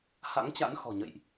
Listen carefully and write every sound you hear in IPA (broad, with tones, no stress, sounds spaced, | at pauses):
h a̰˧˥ ŋ t͡ɕ a̰˧˥ n x ɔ̤˨˩ ɲ ə̰˧˨ j ʔ